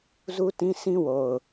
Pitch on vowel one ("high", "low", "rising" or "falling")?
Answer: high